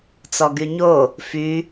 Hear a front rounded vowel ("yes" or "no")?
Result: yes